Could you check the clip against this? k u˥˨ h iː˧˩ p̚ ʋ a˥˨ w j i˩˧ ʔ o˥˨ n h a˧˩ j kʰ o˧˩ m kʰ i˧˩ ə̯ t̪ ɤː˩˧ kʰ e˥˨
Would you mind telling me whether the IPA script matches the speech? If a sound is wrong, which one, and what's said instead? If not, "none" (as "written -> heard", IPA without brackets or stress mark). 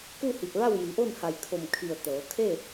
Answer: iː˧˩ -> i˧˩